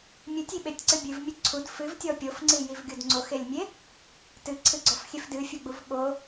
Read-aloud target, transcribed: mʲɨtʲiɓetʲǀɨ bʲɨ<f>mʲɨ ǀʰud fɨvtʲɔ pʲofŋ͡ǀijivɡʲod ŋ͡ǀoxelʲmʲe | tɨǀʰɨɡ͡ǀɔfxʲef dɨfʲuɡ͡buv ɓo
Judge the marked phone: incorrect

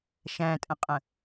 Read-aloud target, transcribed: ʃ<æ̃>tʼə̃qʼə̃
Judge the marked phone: correct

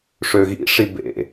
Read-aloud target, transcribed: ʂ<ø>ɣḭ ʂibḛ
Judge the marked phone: correct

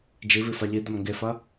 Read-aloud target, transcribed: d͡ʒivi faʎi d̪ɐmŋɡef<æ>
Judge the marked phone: incorrect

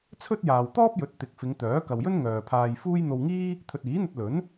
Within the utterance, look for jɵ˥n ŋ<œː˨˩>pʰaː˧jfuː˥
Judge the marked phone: incorrect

